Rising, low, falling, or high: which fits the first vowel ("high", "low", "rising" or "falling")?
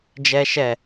high